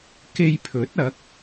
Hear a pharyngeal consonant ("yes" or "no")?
no